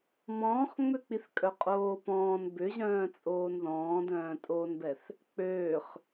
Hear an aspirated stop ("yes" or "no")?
no